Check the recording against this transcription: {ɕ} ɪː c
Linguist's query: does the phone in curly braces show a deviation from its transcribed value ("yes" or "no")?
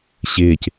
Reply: no